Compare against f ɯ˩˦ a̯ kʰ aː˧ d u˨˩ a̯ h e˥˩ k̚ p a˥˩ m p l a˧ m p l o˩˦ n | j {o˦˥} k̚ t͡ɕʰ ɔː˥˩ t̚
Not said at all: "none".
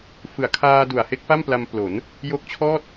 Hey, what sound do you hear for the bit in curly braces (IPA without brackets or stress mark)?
o˦˥